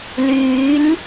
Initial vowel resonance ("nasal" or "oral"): oral